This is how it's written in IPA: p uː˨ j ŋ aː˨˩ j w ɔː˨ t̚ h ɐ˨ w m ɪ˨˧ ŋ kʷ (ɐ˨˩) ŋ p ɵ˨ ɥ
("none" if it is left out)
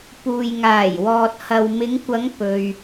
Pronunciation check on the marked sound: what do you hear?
ɐ˨˧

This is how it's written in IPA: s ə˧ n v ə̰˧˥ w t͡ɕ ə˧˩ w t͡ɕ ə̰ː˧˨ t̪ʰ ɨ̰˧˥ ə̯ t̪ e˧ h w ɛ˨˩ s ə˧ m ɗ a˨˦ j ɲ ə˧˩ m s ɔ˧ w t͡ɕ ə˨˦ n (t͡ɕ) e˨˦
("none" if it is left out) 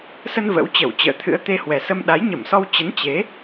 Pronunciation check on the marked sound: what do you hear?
t͡ɕ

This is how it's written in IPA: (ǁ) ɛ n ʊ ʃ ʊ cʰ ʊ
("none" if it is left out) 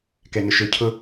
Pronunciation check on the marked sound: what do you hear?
k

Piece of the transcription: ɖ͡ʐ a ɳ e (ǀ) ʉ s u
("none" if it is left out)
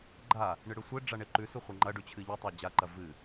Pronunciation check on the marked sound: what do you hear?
ǃ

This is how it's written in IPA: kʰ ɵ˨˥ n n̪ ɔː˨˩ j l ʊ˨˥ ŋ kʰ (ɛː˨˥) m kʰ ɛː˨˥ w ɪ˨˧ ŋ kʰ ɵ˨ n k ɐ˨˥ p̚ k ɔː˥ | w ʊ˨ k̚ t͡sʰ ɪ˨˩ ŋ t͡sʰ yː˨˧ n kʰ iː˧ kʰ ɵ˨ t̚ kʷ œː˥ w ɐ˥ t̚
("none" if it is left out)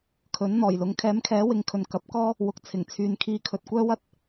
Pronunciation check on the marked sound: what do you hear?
ɛː˨˥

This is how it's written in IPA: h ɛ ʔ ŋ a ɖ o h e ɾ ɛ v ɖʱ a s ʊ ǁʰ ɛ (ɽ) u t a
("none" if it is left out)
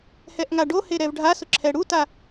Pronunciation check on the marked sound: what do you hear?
ɽ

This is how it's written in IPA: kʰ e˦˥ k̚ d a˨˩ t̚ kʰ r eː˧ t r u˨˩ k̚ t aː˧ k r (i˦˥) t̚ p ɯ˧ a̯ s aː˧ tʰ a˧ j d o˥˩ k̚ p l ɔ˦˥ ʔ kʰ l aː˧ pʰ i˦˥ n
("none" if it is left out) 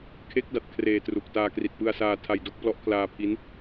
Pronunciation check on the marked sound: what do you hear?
i˨˩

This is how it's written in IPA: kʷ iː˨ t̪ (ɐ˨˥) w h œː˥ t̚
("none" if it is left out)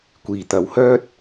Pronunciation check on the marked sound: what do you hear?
ɐ˨˥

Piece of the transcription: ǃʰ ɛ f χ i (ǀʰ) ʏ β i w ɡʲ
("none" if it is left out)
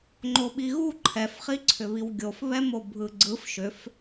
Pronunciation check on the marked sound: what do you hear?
ǀʰ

